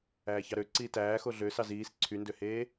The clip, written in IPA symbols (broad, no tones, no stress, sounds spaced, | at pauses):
æː ç ɑ ɾ ø ǀ iː t æː x o ɮ ø s ɑ z iː s ǀʰ y n d ø h eː